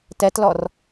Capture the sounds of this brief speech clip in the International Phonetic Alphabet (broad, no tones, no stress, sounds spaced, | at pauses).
t ɛ t l ɔ r